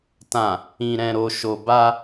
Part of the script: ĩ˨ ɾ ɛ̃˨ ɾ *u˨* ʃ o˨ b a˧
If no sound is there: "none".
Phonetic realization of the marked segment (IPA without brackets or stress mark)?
o˨